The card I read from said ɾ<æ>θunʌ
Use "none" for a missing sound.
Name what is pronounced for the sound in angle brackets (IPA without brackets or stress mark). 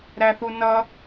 æ